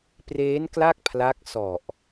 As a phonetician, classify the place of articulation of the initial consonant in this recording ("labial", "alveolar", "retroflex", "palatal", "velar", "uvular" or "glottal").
labial